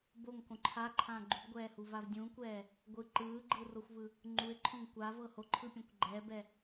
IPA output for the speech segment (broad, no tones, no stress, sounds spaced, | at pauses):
b o ŋ k õ ǃʰ a ǃʰ ã ɡ͡ǃ u b ɡʷ ɛː h u v a v dʲ ũ kʷ ɛː | ɡʷ ɯ ǃ ɯː ɡ͡ǃ ɯ r o xʷ v ɯ | ŋ͡ǃ u ɪ̯ ǃʰ õ ŋ kʷ a v ɤ h o ǃʰ ɯ pʲ õ kʷ ɡ͡ǃ ɛ b ɛ